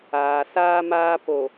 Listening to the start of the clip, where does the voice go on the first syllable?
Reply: low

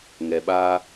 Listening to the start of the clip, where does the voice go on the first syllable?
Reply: low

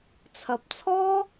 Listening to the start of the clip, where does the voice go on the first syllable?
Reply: low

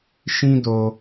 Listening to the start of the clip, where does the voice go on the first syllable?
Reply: high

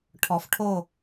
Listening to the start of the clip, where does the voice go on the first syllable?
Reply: low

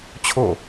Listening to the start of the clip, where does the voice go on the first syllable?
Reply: falling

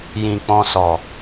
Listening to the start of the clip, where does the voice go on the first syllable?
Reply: low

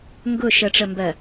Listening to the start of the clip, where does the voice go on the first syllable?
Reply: falling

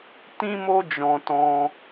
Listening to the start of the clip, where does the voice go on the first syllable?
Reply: high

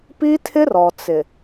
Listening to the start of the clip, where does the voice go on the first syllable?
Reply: high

